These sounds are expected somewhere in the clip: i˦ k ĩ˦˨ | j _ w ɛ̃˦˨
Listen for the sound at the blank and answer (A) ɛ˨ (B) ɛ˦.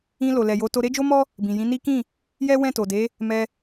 B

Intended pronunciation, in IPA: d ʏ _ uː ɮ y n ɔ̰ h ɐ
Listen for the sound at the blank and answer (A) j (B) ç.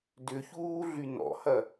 B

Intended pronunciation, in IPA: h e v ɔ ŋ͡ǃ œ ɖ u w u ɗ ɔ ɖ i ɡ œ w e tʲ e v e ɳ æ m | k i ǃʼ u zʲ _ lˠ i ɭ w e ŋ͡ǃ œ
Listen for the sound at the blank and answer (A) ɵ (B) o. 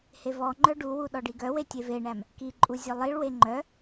A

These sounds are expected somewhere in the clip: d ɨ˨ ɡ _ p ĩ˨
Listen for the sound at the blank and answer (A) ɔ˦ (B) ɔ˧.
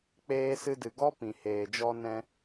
A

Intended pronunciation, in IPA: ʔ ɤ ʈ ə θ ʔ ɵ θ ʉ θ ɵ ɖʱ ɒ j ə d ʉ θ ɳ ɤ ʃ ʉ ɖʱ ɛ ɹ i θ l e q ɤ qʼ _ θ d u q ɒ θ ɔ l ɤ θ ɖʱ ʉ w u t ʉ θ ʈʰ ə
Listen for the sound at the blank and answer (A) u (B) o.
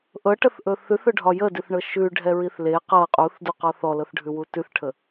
A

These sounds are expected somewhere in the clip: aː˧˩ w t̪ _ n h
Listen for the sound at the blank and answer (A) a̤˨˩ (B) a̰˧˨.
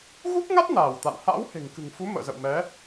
B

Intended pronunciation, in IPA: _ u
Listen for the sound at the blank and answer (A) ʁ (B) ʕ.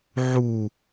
B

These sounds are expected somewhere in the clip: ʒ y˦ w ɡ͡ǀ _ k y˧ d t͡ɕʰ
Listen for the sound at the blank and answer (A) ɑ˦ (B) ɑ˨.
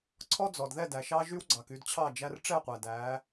B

